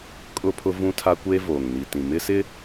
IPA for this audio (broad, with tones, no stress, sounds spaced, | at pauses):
kʼ ʊ˦ pʰ ʊ˦ v ũ˦ tʰ a˦ kʷ eː˦ v oː˨ ŋ n i˨ t ĩ˨ m ɪ˦ s ɪ˦